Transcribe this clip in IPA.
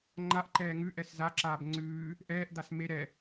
ŋ͡ǃ a ʔ ǃ ɛː ŋ ʉ ʔ ɛ s z a ǁ aː b ŋ͡ǀ ʉː | ʔ ɛː ʔ d̪ a s m e ɾ ɛ

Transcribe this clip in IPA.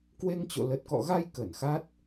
k w e˧ ŋ t͡ɕ o̰˧˨ l ə˨˩ t̚ k ɔ̰˧˨ ɣ a˧ j k ə˧˩ n x a˦˥ t̚

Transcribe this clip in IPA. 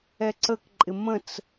ɛ ǀ ə k ǃʼ ɪ m ə̃ t͡s

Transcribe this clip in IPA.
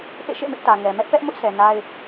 ʔ ḛ˦˨ ʃ ḛ˦˨ m ɪ˦ ʔ t ä˨ ŋ ɛ˨ m ɛ˦ ʔ p ɛ˦ ʔ m ʊ˦ ʔ sʰ ɛ˨ n a˦ ɪ̯

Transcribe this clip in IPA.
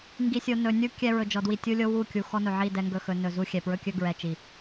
ŋ ɡ i˨ sʲ o˨ n ɵ˨ nʲ u˦ kʲ ɛ˦ ɹ ɵ˨ d͡ʒ ɔ˨ d w i˨ tʲ u˦ lʲ o˦ w u˦˨ kʲ u˨ x ɔ˦ n ɵ˨ ʕ i˦˨ d ɛ˦ ŋ ɡ ɵ˦ x ɵ˨˦ n ɵ˨ z u˦ xʲ ɛ˨ p ɹ ɵ˦ kʲ ɵ˦ ɡ ɹ ɛ˨ t͡ʃ i˨

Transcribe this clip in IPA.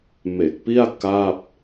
m e˨˩ k̚ p i˥˩ a̯ k a˥˩ p̚

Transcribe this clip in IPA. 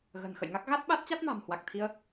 ɣ ə̤ː˨˩ n x ə̰˧˨ j ŋ a˦˥ k̚ ɣ a˦˥ t̚ ɓ a˦˥ t̚ t͡ɕ a˦˥ t̚ m a̤˨˩ m h w a˨˩ k̚ t̪ʰ i˧ ə̯

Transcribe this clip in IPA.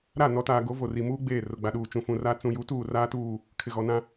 ɾ a˦˨ n ɔ˨ t aː˨ ɡ o˨˦ v o˨ r i˨ m uː˦ ɡ͡b eː˦˨ r ʊ˨ ɡ͡b a˨ ɗ uː˨ t͡ʃ ũ˨ f ũ˨ r aː˦ t͡s ũ˨ j u˨˦ t uː˦˨ r aː˦ t uː˦˨ | kʰ ɪ˨ ɣ ɔ˨ n ã˦

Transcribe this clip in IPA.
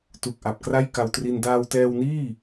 t u˨˩ k̚ ʔ a˨˩ p̚ k r a˥˩ j k a˧ w t r i˧ n d aː˧ w t ɛː˧ w n iː˥˩

